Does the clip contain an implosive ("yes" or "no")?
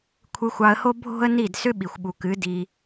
yes